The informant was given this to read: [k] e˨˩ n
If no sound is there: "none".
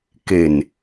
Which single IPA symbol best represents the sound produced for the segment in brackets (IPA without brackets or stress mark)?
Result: k